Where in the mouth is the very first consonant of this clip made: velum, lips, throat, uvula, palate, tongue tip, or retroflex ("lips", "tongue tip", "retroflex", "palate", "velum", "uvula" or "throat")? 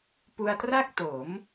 lips